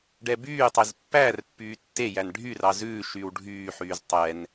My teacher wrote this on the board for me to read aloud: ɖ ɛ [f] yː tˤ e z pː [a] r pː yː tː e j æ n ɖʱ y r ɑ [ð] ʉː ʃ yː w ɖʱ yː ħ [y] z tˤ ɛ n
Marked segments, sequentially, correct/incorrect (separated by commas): incorrect, incorrect, incorrect, incorrect